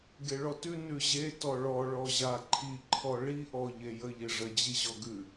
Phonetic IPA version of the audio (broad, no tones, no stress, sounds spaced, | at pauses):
ɡ e ɭ ɔ t ʉ n ʉ ʑ e t ɔ ɭ ɔ ɭ ɔ ʑ a ǃʰ i ǃʰ ɔ ɭ i ʔ ɔ ʎ e j ə ʎ e ʐ ə d͡ʑ i ʑ ɔ ɡ ʉ